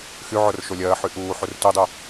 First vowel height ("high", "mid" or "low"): high